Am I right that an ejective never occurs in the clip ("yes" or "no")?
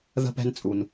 no